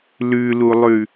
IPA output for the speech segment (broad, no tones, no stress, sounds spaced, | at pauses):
l ʉ l u lˠ ʉ